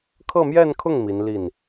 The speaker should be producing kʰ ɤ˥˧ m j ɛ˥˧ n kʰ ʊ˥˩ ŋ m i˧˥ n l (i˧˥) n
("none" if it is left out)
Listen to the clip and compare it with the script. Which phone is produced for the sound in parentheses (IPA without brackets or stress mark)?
i˥˩